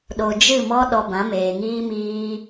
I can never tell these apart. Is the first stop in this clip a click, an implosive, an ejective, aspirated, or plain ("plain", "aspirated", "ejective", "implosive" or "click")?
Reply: implosive